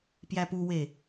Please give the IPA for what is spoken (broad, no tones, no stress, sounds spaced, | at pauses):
p j æ p u w e